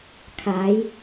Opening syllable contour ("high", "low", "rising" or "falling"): rising